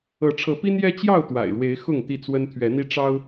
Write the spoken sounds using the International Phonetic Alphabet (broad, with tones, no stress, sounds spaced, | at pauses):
ɤ˨˦ ʈ͡ʂʰ ɤ˨˦ p i˦ n j ɛ˦ t͡ɕ j ɑ˥˨ ʊ̯ t̪ w a̰˨˩ ɪ̯ ɻ w e˨˦ ɪ̯ x ʊ˥˨ ŋ t̪ i˥˨ t͡s w ə˦ n t̪ʰ ɥ ɛ˨˦ n̪ i˦ ʈ͡ʂ ɑ˦ ʊ̯